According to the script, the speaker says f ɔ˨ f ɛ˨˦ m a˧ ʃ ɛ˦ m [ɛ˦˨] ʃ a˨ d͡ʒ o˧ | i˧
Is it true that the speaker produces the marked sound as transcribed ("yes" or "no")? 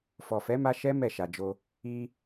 yes